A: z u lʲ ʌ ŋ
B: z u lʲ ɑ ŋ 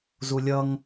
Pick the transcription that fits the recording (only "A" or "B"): A